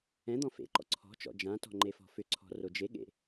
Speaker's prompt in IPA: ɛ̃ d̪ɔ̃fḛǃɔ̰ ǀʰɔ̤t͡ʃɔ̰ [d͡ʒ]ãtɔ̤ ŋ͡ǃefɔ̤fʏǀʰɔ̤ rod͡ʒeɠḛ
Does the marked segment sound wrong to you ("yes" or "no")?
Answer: no